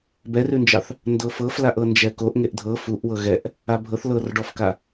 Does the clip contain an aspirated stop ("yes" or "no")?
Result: no